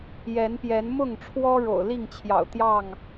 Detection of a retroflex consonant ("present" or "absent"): present